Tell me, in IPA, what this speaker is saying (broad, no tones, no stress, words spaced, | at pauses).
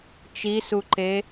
t͡ʃisuǃe